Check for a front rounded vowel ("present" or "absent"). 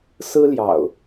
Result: absent